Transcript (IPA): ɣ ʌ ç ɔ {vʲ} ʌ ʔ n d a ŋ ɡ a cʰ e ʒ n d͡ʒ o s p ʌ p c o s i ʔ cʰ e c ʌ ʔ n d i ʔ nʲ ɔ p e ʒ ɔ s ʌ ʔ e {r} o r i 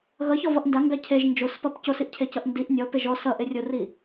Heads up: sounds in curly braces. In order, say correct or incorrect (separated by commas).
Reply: incorrect, incorrect